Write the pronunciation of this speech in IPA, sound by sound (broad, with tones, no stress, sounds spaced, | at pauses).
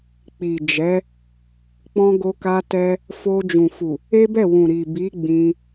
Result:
k͡p i˨ d͡ʒ ɛ˨˦ | k͡p ɔ̃˧ ɡ o˧ k a˧ t ɛ˧ | f o˧ d͡ʒ ũ˨ f u˨ | e˦ b ɛ˦˨ w ũ˨ ɾ i˨ b i˨˦ ɡ͡b ĩ˧